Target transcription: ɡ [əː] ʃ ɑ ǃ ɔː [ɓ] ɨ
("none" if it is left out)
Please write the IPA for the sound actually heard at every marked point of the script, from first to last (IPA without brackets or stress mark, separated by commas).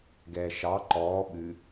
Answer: ɛː, ɓ